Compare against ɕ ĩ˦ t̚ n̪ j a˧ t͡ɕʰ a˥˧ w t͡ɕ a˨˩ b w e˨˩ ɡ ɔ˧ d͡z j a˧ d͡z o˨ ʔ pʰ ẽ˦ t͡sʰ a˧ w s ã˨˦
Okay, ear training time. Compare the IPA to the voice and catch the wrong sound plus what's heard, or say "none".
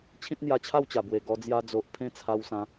ɕ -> t͡ɕʰ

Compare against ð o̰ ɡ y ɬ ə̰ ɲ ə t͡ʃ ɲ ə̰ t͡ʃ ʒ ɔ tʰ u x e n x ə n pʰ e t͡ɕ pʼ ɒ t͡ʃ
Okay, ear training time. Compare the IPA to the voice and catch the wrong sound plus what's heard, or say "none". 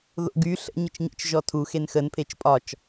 t͡ɕ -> t͡ʃ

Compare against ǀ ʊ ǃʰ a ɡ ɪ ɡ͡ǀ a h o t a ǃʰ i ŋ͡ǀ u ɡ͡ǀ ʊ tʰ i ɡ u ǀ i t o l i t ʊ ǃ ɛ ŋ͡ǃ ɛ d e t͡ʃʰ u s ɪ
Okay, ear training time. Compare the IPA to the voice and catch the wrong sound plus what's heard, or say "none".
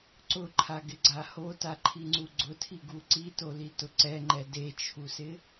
ǃ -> ǀ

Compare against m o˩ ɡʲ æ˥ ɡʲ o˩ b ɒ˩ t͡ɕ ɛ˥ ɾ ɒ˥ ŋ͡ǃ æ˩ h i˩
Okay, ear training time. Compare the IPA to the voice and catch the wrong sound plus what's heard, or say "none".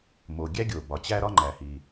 ɛ˥ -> æ˥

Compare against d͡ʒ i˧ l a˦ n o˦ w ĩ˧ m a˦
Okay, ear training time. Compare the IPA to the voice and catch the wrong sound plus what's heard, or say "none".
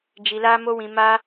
n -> m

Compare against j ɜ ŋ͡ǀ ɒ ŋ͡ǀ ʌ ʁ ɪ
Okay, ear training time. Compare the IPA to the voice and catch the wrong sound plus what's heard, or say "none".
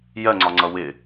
ʁ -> w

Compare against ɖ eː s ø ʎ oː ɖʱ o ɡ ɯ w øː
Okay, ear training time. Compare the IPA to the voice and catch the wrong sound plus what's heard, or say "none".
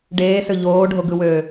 none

